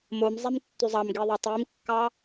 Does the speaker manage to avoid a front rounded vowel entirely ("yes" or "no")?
no